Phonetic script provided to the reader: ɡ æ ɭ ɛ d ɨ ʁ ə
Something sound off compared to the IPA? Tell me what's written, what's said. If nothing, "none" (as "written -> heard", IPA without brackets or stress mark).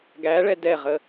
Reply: ɨ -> ɛ